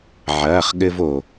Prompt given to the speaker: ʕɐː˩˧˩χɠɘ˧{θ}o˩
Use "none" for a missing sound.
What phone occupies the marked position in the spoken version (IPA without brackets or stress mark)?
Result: v